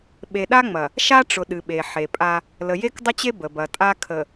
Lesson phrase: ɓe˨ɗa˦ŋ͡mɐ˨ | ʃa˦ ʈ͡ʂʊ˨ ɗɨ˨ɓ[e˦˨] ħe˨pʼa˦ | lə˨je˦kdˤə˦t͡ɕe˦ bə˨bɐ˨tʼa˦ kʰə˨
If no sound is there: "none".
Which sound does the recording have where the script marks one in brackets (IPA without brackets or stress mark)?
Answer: e˨